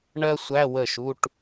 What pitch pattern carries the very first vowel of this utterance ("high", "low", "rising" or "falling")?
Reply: high